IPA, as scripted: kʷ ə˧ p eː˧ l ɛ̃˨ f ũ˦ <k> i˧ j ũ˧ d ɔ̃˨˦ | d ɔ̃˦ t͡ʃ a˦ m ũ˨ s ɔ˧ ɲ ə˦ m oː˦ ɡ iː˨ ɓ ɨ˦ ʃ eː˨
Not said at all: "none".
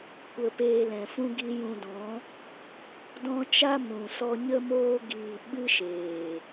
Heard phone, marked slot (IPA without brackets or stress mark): ɡ